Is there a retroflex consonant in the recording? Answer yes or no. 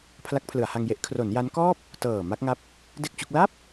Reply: no